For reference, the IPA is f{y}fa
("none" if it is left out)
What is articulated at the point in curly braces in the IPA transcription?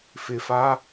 ɪ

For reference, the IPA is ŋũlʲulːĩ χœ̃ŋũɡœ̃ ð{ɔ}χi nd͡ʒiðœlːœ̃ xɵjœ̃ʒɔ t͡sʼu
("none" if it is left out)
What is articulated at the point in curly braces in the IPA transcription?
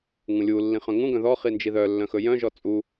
ɔ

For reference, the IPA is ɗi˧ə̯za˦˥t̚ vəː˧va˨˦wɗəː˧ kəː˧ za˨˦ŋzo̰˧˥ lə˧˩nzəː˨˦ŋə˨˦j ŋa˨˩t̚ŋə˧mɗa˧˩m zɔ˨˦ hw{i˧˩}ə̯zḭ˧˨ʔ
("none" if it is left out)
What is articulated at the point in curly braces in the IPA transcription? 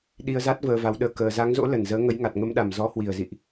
i˧˩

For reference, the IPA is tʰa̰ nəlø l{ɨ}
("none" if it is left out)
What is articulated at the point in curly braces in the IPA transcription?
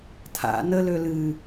ɨ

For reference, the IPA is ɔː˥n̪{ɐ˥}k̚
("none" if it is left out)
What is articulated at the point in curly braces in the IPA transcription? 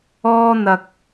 ɐ˧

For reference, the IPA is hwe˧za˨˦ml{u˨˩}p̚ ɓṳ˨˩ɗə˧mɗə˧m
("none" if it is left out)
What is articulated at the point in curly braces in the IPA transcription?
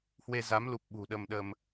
u˨˩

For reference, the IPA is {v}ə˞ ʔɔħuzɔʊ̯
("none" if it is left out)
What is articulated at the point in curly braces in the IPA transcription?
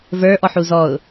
v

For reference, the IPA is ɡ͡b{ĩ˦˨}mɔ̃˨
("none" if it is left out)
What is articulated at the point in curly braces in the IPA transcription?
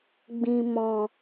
ĩ˨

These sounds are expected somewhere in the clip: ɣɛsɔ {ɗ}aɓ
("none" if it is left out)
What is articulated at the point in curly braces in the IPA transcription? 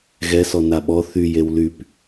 n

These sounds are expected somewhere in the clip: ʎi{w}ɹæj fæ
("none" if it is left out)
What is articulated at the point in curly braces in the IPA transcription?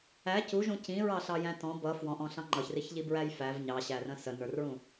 b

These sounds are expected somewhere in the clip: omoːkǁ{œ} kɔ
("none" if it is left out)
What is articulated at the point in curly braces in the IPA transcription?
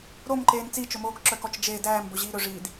œ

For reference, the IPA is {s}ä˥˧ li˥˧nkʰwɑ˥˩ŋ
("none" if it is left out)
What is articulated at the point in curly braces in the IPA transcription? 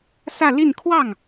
s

